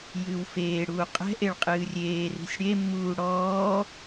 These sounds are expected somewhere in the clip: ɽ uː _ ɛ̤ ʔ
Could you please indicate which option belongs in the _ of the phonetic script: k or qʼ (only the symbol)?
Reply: qʼ